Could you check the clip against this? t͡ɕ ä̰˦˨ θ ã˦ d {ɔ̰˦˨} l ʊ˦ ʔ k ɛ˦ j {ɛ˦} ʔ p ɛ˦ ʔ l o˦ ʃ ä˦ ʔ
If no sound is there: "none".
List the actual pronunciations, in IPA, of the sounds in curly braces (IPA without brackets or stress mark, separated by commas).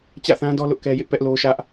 ɔ˦, ɪ˦